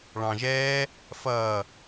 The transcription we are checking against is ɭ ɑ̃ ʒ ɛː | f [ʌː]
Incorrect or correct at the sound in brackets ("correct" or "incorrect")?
correct